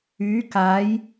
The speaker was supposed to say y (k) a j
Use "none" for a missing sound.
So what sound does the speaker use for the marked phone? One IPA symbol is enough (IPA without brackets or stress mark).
k